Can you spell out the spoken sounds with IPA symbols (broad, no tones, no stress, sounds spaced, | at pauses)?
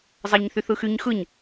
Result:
zˤ ɑ ɲ θ y θ ɯ x y ɲ x ɯ ɲ